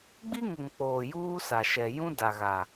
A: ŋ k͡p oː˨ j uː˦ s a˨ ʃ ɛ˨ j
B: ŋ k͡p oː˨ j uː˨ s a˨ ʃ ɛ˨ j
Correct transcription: A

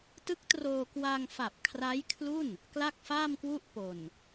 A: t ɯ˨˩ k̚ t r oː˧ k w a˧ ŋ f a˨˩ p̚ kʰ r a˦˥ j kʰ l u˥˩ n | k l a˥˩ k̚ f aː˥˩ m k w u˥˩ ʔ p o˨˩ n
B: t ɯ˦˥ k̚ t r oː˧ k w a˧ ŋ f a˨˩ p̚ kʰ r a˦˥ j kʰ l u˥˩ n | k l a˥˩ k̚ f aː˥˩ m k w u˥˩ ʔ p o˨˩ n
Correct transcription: B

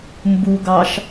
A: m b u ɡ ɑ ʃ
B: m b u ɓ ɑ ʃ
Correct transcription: A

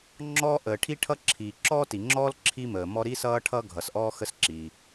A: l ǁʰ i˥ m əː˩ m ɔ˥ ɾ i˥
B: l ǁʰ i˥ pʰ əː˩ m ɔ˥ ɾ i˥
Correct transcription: A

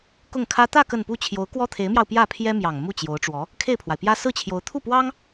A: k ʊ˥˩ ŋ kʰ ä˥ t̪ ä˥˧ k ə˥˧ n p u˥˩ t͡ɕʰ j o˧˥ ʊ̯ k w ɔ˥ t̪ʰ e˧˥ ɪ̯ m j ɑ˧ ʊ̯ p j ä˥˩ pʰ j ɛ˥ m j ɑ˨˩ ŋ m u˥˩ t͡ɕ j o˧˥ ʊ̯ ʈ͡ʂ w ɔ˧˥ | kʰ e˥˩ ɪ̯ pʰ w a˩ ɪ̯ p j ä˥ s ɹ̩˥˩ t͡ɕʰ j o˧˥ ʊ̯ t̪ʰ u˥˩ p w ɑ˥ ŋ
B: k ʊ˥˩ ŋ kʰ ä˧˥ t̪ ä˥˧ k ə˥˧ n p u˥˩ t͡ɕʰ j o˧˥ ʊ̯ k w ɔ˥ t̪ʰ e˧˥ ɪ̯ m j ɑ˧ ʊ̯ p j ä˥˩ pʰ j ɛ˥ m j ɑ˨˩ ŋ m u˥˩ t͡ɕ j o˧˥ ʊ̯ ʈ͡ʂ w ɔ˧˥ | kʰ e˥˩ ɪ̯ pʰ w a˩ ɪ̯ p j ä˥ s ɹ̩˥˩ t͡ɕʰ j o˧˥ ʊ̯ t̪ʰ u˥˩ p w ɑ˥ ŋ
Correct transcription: A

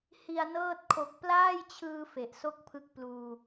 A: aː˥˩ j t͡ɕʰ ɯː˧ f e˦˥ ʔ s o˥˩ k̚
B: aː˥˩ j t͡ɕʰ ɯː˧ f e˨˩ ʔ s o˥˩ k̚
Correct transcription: B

